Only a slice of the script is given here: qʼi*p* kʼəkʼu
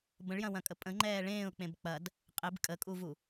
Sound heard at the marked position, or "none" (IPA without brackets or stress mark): b